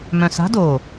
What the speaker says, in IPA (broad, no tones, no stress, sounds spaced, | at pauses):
m œ̃ s a̤ d o